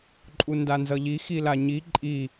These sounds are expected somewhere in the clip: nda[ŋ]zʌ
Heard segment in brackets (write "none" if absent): n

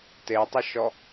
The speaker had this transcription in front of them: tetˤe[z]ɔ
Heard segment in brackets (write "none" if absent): ʃ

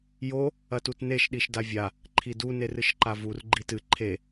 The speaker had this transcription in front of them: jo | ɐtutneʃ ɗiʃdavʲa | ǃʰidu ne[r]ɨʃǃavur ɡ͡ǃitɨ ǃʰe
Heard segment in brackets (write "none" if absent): r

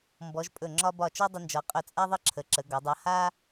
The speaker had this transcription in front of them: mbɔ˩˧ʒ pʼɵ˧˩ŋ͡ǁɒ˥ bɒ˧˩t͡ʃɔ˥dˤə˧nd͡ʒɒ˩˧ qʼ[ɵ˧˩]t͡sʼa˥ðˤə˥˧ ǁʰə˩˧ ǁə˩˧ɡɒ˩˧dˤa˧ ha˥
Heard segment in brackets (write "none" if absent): ɵ˧˩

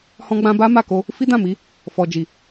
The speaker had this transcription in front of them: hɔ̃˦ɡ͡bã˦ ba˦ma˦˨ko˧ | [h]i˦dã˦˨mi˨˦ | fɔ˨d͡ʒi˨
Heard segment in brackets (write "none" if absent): f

